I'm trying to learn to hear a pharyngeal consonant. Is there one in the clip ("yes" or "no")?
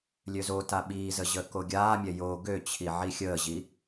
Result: yes